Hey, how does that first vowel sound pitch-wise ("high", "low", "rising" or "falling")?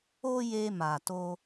high